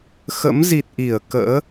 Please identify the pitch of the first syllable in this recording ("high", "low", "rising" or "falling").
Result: rising